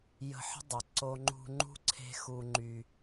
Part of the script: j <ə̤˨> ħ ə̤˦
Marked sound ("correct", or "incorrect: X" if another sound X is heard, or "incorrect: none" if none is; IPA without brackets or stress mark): incorrect: ə̤˧